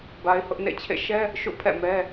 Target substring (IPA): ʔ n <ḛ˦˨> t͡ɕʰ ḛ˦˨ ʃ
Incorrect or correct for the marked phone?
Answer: correct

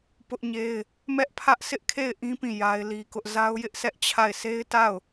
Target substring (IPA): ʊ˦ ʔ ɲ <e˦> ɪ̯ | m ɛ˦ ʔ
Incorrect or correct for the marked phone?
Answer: correct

